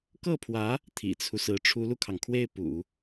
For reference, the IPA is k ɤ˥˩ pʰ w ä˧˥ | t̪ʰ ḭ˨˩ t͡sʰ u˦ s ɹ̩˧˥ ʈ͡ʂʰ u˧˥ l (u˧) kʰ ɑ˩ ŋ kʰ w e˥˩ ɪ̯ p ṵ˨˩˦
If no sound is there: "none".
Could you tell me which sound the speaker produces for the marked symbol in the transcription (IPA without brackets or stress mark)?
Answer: u˧